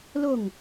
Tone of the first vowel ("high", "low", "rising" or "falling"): falling